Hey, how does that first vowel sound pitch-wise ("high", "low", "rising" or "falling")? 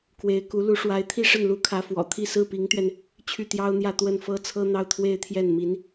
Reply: rising